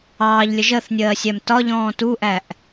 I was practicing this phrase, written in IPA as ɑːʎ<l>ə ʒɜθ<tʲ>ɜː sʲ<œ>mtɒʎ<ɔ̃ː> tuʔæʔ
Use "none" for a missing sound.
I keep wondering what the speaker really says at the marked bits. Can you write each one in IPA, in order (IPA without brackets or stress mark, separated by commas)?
lʲ, nʲ, æ, ɔ̃ː